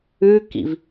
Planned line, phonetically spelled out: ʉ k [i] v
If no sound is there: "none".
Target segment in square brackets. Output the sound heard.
ḭ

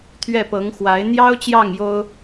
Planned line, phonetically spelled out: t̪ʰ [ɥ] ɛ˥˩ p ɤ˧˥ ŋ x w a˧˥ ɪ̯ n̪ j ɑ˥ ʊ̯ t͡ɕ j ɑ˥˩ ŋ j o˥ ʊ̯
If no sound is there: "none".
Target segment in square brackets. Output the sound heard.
ɥ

